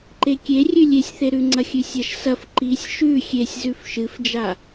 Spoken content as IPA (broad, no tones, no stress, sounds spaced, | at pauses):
ǃ e kʲ e rʲ ʉ lʲ e sʲ θ e ɾ ʉ ŋ͡ǀ ɐ xʲ ʉ sʲ ɐ ʃ s ɐ f ǃ i sʲ ʃ ʉ xʲ e sʲ z ʉ f ʃ ɨ f d͡ʒ a